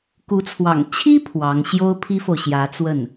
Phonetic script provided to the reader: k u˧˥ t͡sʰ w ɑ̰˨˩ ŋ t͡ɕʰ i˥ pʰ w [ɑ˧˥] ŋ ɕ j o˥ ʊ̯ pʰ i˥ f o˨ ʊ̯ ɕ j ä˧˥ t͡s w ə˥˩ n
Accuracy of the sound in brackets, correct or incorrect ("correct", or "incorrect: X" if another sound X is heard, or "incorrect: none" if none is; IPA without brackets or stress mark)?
correct